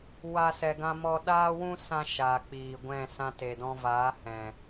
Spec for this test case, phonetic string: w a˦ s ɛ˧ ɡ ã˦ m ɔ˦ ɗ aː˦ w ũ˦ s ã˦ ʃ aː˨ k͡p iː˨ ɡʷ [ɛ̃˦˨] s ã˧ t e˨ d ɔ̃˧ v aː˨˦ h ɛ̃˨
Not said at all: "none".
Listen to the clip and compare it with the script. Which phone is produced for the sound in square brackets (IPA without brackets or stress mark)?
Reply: ɛ̃˦˨